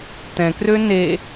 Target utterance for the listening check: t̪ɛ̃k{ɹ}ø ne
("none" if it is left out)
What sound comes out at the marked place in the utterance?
r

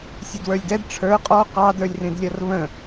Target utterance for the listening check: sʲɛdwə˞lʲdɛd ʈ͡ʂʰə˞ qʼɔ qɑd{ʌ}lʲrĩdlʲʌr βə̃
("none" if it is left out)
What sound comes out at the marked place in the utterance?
ə˞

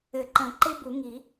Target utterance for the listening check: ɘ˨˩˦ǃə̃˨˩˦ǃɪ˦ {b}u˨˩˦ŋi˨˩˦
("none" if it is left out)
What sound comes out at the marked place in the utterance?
b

